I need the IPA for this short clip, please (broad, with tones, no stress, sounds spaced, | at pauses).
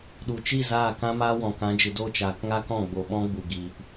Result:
ɗ u˨ t͡ʃ i˦˨ z aː˦˨ k ã˦ m aː˦ w ɔ̃˨ k ã˨˦ d͡ʒ ɨ˨ d o˦˨ t͡ʃ aː˨ k ŋ a˦ k ɔ̃˦˨ ɡ͡b o˨ ɓ ɔ̃˦ ɡ͡b u˨ ɡ i˨ p